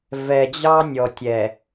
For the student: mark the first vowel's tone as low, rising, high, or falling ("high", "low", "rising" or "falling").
low